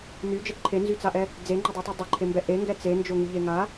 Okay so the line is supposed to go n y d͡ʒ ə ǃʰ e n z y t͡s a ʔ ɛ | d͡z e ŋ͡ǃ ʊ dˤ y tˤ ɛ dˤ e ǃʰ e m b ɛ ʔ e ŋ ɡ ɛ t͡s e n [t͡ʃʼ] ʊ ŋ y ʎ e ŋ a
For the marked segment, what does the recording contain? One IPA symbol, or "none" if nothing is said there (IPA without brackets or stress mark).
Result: d͡ʒ